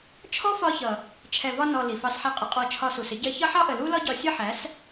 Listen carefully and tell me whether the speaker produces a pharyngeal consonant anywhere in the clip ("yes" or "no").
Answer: yes